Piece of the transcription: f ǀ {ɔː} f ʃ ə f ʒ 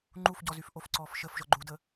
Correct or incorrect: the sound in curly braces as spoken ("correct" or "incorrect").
correct